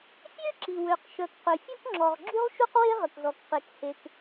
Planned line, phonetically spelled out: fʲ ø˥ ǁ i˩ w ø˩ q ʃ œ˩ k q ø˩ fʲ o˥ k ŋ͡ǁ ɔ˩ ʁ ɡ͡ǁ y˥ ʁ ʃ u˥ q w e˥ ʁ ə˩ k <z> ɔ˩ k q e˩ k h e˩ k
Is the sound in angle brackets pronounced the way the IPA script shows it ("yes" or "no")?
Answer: yes